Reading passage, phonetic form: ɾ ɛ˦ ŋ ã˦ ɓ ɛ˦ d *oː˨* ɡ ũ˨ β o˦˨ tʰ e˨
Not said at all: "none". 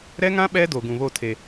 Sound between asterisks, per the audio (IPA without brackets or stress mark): o˨